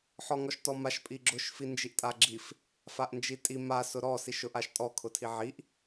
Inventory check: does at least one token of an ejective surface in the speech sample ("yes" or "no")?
yes